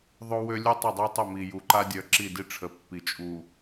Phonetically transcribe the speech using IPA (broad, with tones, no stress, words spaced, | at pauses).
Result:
ðˤo˦wø˦ lʲu˦tˤœ˦˨dˤœ˦tˤə˦˨ mi˨ju˨ǃa˦ dʲœ˨ ǁi˦˨di˦ʈ͡ʂʰə˨pːi˨ t͡ʃʼu˨